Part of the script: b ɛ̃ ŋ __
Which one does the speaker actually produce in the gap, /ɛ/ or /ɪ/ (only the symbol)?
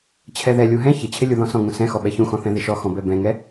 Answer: ɛ